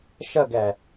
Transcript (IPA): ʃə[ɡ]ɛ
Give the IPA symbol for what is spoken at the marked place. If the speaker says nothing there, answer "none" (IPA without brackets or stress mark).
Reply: ɡ